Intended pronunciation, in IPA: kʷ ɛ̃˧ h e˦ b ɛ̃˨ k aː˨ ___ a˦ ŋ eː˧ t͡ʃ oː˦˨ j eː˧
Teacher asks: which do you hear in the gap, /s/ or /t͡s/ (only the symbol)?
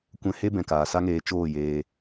s